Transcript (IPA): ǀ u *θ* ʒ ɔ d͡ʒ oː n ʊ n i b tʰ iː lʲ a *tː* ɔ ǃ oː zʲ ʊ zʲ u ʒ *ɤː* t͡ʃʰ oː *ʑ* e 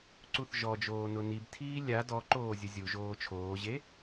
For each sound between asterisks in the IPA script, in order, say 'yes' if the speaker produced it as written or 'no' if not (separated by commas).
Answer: yes, no, no, yes